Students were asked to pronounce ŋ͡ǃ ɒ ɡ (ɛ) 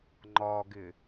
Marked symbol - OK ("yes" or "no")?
no